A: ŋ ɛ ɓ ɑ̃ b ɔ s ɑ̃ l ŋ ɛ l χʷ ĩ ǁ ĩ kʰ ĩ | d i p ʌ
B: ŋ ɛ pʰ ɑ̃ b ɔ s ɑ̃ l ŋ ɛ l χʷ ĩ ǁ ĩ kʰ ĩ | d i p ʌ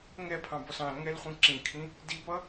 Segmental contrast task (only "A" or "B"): B